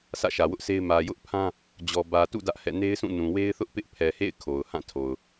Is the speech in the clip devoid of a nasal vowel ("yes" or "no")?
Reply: no